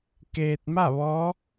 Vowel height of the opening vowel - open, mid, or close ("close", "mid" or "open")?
mid